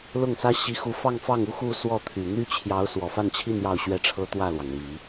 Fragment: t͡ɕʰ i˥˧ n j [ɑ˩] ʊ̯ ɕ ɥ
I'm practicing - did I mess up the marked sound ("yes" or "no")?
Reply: yes